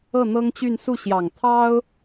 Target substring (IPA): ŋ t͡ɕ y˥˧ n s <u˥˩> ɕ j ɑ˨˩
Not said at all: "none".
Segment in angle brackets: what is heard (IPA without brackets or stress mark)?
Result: u˥˩